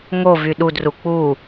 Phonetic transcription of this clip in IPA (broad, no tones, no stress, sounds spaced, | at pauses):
ŋ o v y ɗ u d r u k͡p u